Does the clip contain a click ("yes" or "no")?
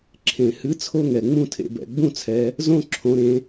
yes